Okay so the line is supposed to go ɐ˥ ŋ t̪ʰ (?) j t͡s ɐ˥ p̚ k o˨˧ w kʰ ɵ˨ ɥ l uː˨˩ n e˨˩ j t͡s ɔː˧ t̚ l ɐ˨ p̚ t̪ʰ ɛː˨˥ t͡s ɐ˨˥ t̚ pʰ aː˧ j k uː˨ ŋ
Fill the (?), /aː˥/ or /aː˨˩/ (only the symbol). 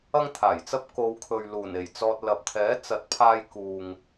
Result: aː˨˩